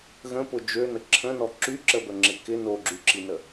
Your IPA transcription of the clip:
ɣ ə̃ p ʊ d͡ʒ ø n ə ǁʰ ə̃ n ɔ ǁ y ǁ ə b ə ŋ͡ǁ ɪ k ɪ n o ɡ͡ǁ y ǁ i n ə

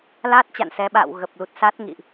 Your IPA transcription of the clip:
l aː˦˥ t̚ t͡ɕ a̰˧˨ n s ɛ˨˦ ɓ a̰ː˧˨ w ɣ ə˨˩ p̚ l u˨˩ t̚ s a˦˥ t̚ ŋ ḭ˧˨ ʔ

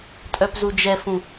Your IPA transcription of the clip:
tʼ œ p z u d͡ʒ ɛ f ũ

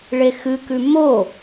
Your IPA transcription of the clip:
ɭ e x ɨ k ʉ m o

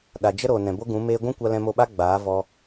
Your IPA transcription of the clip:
ɗ a˨ d͡ʒ ə˦ ɾ oː˨ n ɛ̃˨ b o˦ ɡ ũ˨˦ m eː˦ ɡʷ ũ˦ kʷ a˧ l ɛ̃˧ m o˧ ɓ a˦ ɡ͡b aː˨˦ v ɔ˧

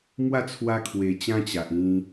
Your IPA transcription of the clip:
m w a˥˧ t͡sʰ w a˧ kʰ w e˨˩ t͡ɕ ã˦ t͡ɕ a˨ ʔ ĩ˧

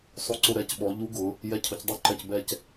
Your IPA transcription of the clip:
sˤ o˧˩ ǀ ʊ˧˩ ɾ ɛ˩˧˩ c ɓ ɔ˩˧ ʎ u˧˥ ɡ ʊ˩˧ | j ɛ˧˩ cʰ ʊ˩˧ c dˤ u˧˥ ǃ ɛ˧˩ c b ɛ˥˨ c

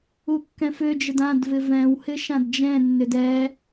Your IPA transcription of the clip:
u kː ɛ̃ f ø d͡ʒ ə d ã d v ɪ v ɛ̃ w h ɪ ʃ ã d d͡ʒ ɛ̃ nː ʏ d ɛ

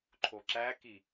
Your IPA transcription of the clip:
ǃʰ o ǁ æ k i

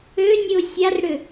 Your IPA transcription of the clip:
ø nʲ ɨ ʊ̯ sʲ a r ɽ ʏ

